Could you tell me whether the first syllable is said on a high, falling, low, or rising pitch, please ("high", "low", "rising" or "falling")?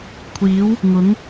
rising